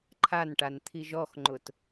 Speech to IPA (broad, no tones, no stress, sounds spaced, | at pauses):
ǃʰ a n ʈ a n t̪ʰ i ʒ ɔ x ŋ͡ǃ ʊ t